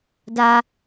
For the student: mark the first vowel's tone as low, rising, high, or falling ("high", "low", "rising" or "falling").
high